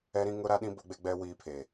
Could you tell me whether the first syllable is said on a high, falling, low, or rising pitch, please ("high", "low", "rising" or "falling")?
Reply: high